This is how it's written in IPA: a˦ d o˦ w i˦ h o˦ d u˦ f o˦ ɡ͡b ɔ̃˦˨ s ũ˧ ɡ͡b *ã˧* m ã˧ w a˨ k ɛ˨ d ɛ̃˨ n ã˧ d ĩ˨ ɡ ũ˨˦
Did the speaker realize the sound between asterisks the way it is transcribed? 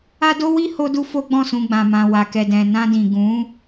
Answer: yes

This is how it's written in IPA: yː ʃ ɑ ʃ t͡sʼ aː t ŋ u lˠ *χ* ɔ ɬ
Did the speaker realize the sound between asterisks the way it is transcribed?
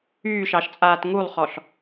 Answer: yes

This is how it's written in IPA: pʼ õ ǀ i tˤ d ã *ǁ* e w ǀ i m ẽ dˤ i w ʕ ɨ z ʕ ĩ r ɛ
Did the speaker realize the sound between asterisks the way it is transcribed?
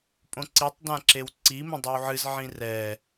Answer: yes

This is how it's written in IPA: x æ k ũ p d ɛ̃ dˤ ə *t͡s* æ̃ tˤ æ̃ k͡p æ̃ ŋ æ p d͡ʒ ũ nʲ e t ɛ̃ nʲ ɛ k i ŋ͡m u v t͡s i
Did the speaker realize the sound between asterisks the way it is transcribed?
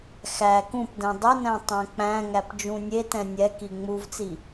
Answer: no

